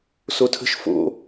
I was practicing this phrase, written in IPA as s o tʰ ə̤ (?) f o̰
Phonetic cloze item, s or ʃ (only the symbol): ʃ